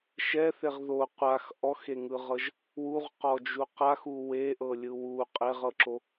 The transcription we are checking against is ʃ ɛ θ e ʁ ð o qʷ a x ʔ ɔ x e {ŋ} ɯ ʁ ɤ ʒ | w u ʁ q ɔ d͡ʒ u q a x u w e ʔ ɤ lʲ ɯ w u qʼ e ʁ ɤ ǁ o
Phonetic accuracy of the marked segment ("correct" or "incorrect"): correct